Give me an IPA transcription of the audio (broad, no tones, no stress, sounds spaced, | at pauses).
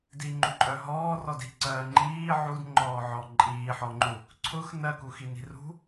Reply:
d i ŋ͡ǃ u ǃʼ œ ɦ ɔː r ɔ d i̤ ǀ ɜː ŋ͡ǃ iː ʕ u d ŋ͡ǃ ɔː ʕ ɔ ǃʼ iː ħ ɔ ŋ͡ǃ u | ǀʰ ʊ x n ɜ k u x i n i̤ r ṳ